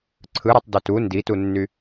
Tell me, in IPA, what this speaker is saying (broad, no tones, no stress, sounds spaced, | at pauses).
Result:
ǀʰ ɯ ɾ e tˤ d ø t u n d i t u nː y